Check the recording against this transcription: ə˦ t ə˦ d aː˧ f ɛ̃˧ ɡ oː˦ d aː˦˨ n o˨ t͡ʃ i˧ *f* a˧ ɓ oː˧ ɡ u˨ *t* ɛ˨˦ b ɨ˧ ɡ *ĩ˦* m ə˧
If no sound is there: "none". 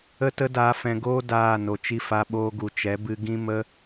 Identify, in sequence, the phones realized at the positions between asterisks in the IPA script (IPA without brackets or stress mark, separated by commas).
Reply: f, t͡ʃ, ĩ˦